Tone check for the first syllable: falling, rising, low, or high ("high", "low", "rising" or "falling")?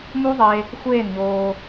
high